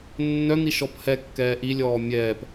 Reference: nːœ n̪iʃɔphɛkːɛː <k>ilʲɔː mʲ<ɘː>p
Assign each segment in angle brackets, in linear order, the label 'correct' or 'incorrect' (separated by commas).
incorrect, incorrect